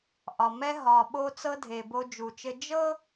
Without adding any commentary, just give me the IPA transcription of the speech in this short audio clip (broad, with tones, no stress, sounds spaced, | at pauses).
ʔ ɒ˨ m ɛ˦ ɦ ɒ˨ ɓ o˦ t͡s ɤ˦ dʱ e˨ b o˦ d͡ʒ u˨ t͡ʃ ɘ˦ d͡ʒ ɤ˦